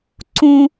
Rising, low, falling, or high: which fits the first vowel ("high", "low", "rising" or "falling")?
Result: high